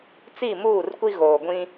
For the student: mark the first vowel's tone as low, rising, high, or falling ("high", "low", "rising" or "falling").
falling